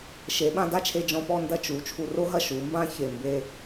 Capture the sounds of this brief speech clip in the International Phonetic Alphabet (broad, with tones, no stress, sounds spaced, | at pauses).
ʃ e˩˧ ɓ ã˧ d a˥ t͡ʃʰ e˧ d͡ʒ ɔ̃˧ p ɔ˥˧ n d ɐ˥˧ t͡ʃ u˩˧ t͡ʃʰ u˧ r o˥ ɦ ɐ˥˧ ʃ u˩˧ m b ã˥ ç e˧˩ m b e˥˧